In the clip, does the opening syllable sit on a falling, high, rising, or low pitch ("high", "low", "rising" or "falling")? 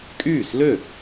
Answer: falling